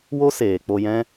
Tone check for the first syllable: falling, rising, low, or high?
high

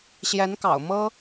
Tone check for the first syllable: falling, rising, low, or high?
rising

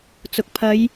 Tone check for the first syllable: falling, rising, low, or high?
low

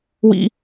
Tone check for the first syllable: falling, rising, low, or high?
low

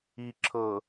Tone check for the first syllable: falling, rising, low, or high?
low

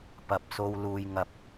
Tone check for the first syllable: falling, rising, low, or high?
low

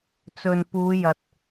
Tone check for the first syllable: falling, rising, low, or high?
low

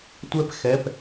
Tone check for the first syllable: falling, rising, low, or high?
high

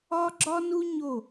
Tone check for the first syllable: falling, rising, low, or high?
high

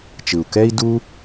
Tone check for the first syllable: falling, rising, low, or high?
low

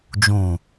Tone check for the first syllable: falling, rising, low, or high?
low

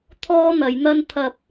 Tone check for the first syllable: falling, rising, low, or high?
high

